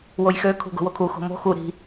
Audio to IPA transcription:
wojxø kʰṳɡo̤wokʰu xo̤mo̤ xu ɾi̤

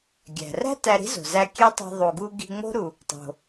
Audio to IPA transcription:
ɡʲæ̤˩ræ̤˥ tæ˧ɾi̤˥zo̤˩zæ˧ kʲe˥tˤi̤˧ ðˤu˩ɡu˧ ɡi̤˧ ŋ͡mo̤˥ɾu˩ | tˤo̤˩

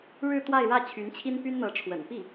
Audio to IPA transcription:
ɻɻ̩˥˧ t̪wa˥˧ɪ̯ɻä˥˩ t͡ɕʰy˧˥nt͡ɕʰi˥n py˥nn̪ɤ˧˥ʈ͡ʂʰwə̰˨˩n pi˥˩

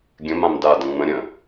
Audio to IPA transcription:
ɡʲə̃mãm dadə̃ ŋ͡mə̃ ɾʲə̃

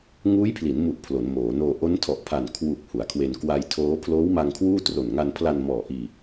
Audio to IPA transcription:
ŋuː˦˥jpʰli˩˦nmu˨˩ʔ pʰlo˩˦nmoː˩˦ noː˧ ʔo˦˥ntʰɔ˨˩ʔpʰa˨˩n kʰwu˨˩k̚ hu˩˦a̯kʰwe˧n kwa˧jtʰoː˦˥ pʰloː˦˥wma˧ŋ kʰwuː˥˩tro˨˩n ŋa˧npʰla˧nmɔː˨˩ʔiː˧

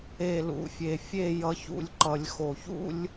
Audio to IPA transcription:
e˨ lṵ˨fʲe˨fʲe˦˨ jʌ˨çṵ˨lʲ ǃʌ˨lʲxo˨çṵ˦lʲ

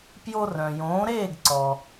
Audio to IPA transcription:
pjo˧rœ̃˩jõː˩˥ɾeː˥˩ɡ ǀɔ˩

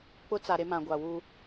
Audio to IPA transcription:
k͡pʊ˦t͡sa˨ ɾe˦mã˨ ɡʷa˨wu˦

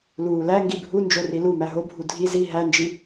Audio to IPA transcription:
luːlæ ŋɡibʱu nd͡ʒorilu mæɦobʱu dʱi zi ɦænd͡ʒi

